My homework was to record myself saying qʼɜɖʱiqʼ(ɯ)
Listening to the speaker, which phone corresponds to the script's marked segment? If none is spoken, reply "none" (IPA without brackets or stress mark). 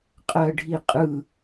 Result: ɯ